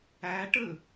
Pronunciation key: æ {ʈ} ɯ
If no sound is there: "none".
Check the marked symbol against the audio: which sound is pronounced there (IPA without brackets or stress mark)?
ʈ